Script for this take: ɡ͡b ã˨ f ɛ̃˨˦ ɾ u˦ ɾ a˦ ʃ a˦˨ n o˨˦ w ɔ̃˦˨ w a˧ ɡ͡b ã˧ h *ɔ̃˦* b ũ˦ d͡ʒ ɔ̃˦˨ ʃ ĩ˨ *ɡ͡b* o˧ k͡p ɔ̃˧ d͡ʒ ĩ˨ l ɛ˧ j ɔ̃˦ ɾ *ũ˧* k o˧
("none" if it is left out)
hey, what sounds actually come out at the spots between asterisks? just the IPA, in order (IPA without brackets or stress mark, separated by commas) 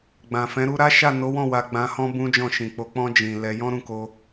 ɔ̃˦, k͡p, ũ˦˨